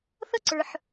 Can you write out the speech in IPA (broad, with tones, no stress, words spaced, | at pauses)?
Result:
θʌ˥ǀə˞˩ħ